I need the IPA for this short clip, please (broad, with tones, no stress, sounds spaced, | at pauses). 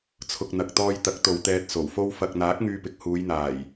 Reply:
t͡sʰ ʊ˨ k̚ n̪ ɐ˨ k̚ t̪ ɔː˧ j t̪ ɐ˨˥ k̚ t̪ o˨ w t̪ ɛː˧ t̚ s o˨˩ w f o˥ w f ɐ˨ k̚ n̪ aː˨˥ k̚ ŋ yː˧ p ɪ˨ k̚ h uː˨˧ j n̪ aː˨˩ j